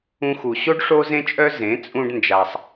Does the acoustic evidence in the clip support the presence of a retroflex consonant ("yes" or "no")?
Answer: yes